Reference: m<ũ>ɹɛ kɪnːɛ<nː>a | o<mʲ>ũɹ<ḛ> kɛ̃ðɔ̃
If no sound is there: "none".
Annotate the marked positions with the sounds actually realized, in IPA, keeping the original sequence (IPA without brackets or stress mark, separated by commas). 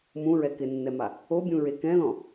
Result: ũ, m, bʲ, e